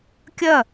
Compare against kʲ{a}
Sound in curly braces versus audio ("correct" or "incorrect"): incorrect